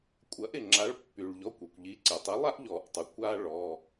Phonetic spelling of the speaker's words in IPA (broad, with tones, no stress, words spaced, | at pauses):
kʷʼɐ˨˥ʔ ɪ˩ŋ͡ǁa˨˥ɭ pːy˩ɭʎɔ˩˧˩kʷ y˩kʷʎi˨˥ǀɪ˩tˤi˨˥ lˠa˦ʔʎɔ˨˩˦ʔtˤu˩ kʷa˦ ɭɔ˩˧˩